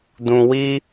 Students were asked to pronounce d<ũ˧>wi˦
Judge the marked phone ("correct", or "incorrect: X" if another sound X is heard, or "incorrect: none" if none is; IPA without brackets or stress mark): correct